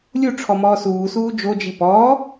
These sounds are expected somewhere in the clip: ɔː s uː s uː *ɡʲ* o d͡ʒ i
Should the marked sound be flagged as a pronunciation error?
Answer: yes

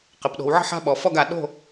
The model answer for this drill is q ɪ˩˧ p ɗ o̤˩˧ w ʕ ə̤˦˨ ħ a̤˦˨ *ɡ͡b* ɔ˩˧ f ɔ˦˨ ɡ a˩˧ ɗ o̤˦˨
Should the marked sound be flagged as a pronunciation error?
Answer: yes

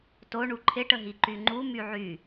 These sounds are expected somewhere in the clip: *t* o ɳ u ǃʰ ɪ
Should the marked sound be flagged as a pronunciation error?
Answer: no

